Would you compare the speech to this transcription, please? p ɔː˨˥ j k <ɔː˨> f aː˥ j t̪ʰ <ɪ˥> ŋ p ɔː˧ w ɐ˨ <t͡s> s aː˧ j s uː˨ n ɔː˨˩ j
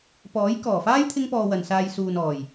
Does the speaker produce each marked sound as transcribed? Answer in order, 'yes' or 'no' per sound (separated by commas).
no, yes, no